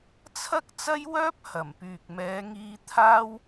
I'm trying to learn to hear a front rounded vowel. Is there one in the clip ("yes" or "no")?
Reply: yes